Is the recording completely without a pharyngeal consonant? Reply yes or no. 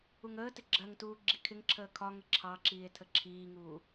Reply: yes